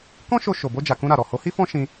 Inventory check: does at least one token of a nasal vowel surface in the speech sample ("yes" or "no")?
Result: yes